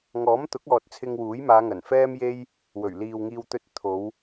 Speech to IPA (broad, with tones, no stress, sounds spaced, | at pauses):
ŋ ɔː˨˥ m t̪ ʊ˨˥ k̚ ɔː˨ t̚ t͡sʰ ɪ˧ ŋ w uː˨˥ j m aː˨˧ ŋ ɐ˨˩ n f ɛː˥ m j e˥ j | w ɵ˨˩ ɥ l iː˨ w ŋ iː˧ w t̪ ɵ˧ t̚ t̪ʰ o˨˧ w